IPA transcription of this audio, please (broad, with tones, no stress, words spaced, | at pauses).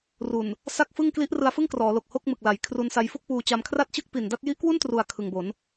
ru˨˩n | sa˥˩k̚ fɯ˥˩ŋ kli˦˥ʔ rɯ˧a̯fɯ˥˩ŋkrɔː˩˦lo˨˩k̚ ho˥˩k̚ mɯ˨˩k̚la˨˩j kʰru˧nsa˧j fu˥˩k̚puː˧t͡ɕa˧m kʰra˥˩t̚t͡ɕɯ˥˩k̚pi˨˩nda˥˩t̚ ji˦˥ʔkwu˥˩ntru˨˩a̯ kʰɯ˨˩ŋbo˩˦n